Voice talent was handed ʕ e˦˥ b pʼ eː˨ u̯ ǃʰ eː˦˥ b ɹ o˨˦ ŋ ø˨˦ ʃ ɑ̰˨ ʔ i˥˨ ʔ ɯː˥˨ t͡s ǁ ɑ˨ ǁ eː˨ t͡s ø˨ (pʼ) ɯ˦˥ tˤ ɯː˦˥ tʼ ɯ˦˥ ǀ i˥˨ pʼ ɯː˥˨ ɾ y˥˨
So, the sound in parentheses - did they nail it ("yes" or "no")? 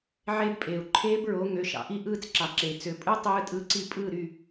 yes